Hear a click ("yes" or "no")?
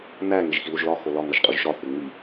no